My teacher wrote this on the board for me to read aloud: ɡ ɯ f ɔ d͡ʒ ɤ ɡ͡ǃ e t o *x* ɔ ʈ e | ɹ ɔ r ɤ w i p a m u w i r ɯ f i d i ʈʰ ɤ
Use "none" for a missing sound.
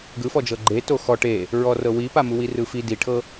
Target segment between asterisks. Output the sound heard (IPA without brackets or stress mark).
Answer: x